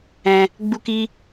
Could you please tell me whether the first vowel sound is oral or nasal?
nasal